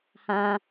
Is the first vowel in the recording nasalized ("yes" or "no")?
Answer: yes